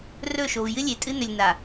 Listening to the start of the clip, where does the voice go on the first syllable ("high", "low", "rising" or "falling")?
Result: falling